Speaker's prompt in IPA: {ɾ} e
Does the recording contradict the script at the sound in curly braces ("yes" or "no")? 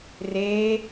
yes